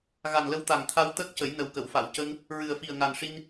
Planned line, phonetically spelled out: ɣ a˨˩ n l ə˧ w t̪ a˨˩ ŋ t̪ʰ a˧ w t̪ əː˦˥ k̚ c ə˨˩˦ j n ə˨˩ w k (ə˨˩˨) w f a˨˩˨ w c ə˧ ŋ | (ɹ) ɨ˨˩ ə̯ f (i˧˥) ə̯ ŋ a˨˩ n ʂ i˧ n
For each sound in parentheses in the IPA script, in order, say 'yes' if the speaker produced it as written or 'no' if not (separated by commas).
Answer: yes, yes, no